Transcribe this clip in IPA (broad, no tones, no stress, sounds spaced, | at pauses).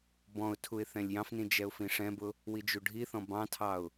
b ɔ̃ ʊ̯ tʰ u ɪ̯ θ ɛ̃ lʲ j ɑ̃ f n ĩ d͡ʒ ɛ ʊ̯ f ĩ ʂ ɛ̃ b ʊ | w i d͡ʒ u ɖʱ i θ ɔ̃ b ɑ̃ tʰ ɑ ʊ̯